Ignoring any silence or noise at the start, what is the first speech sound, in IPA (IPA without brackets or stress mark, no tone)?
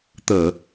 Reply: t̪